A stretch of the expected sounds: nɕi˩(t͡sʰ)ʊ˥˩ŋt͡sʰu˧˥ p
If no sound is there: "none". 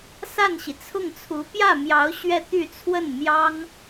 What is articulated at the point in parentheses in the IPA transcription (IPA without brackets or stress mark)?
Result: t͡sʰ